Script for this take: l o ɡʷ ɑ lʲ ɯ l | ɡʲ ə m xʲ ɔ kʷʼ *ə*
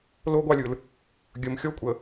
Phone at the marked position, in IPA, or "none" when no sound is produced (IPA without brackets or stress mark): ə